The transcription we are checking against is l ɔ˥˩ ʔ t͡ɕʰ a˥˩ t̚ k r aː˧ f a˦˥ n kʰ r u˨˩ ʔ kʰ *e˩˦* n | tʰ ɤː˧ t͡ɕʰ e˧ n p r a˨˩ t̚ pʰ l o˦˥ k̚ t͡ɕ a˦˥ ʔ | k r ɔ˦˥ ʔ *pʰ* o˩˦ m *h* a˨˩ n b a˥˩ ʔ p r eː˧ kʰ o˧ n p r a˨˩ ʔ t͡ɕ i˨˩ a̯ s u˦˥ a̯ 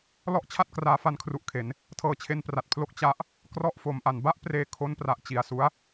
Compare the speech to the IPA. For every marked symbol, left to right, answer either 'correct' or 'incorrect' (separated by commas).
correct, incorrect, incorrect